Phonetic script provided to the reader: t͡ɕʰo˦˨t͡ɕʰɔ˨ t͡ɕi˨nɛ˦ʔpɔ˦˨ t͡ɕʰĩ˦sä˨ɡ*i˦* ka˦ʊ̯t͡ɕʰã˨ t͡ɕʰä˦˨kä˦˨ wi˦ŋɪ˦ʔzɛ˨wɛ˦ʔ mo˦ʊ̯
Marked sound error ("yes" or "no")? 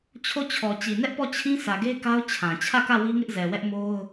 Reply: yes